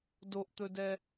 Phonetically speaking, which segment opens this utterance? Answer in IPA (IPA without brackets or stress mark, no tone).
d